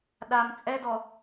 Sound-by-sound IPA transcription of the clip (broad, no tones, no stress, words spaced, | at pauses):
ɗam t͡sʼɛdɔ